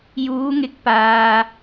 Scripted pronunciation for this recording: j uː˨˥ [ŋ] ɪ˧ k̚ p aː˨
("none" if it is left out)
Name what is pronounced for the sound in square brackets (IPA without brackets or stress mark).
ŋ